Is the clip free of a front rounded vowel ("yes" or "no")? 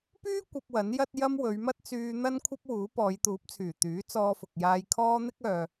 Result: no